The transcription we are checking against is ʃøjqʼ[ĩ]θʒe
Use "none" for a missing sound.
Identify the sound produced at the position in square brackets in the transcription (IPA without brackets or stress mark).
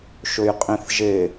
ĩ